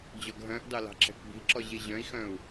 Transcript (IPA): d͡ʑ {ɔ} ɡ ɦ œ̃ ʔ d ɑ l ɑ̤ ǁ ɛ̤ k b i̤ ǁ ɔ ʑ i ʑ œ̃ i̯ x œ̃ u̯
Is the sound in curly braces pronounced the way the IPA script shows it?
yes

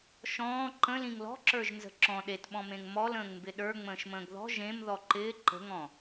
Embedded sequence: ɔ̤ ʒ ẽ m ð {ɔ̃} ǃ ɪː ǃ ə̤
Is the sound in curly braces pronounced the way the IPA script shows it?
no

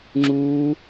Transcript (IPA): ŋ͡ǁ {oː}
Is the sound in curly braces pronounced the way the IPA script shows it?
no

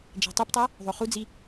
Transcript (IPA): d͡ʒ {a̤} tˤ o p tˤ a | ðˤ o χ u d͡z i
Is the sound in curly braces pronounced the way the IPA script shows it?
yes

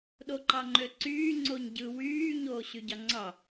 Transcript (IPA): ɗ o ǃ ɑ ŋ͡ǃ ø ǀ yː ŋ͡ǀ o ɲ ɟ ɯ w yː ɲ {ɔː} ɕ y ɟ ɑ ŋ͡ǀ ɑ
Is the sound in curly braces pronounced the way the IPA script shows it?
no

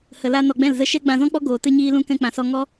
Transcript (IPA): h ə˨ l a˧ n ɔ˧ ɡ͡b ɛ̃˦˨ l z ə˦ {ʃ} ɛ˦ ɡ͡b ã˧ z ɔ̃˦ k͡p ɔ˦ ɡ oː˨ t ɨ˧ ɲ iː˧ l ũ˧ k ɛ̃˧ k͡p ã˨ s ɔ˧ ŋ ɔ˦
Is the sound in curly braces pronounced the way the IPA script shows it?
yes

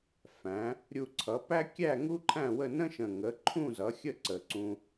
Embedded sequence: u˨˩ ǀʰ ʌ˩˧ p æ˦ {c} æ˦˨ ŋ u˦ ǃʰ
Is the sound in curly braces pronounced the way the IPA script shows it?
no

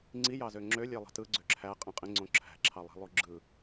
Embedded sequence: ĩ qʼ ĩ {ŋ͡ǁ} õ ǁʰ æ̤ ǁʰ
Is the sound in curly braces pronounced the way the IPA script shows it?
no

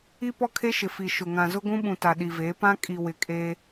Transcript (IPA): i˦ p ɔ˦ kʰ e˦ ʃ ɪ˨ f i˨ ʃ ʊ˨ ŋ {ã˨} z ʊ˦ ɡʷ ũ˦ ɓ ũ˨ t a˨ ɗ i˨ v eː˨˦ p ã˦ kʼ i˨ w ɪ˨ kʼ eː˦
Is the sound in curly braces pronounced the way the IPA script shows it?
yes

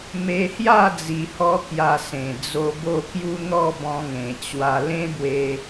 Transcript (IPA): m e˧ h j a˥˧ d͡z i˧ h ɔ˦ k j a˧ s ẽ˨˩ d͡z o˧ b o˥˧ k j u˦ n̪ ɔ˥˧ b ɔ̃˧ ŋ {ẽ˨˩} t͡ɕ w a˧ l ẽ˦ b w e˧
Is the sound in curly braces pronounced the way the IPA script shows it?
yes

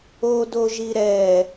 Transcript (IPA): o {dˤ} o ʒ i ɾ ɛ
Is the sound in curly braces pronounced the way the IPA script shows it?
no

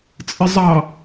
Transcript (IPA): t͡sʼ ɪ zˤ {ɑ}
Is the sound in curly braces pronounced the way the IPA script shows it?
yes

